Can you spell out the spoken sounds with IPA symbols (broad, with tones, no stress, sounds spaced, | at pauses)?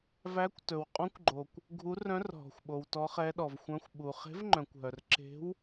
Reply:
v æ˧˥ kʷ t ɵ˨ w qʼ ɔ̃˧˥ kʷ ɡ͡ǃ o˨ kʷ | ɡʱ u˧˥ r œ̃˧˥ r ɦ ɔ̤˨ xʷ ɓ o˨ w t ɔ˧˥ χ ɛ˧˥ ɗ ɔ˨ v xʷ œ̃˧˥ xʷ ɓ u˨ χ e̤˧˥ v ŋ͡ǃ œ̃˨ kʷ ɦ œ˨ r ǁ e̤˧˥ w